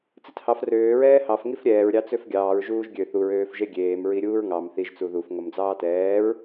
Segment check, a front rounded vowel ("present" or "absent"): present